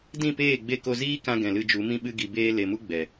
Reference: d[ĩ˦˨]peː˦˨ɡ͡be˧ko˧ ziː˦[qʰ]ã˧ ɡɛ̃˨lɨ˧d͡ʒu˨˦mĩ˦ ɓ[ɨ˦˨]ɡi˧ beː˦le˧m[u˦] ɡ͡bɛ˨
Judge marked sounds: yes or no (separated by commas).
yes, no, no, yes